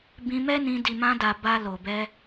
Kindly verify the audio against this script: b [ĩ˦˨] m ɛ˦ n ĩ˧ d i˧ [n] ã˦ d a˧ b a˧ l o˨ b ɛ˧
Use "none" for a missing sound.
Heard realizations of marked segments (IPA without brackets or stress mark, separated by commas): ĩ˧, m